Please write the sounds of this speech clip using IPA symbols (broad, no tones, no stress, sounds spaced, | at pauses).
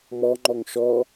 m ɔ ŋ͡ǃ ɔ ŋ ʃ ɔ